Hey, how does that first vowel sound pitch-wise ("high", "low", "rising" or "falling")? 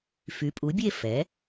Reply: rising